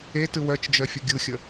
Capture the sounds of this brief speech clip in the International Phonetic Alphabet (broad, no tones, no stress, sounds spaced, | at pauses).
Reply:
e t ɯ w œ t͡ʃ d͡ʒ œ fʲ ə ɡʲ ɯ xʲ ə